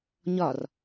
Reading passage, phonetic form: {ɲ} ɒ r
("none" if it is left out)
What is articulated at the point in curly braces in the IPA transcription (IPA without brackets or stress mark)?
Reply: ɲ